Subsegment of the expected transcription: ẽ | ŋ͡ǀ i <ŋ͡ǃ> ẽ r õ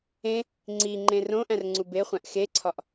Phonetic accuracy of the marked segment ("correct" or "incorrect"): correct